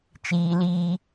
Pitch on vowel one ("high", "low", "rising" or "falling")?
low